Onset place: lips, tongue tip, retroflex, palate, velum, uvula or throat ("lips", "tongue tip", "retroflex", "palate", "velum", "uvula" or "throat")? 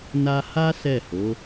tongue tip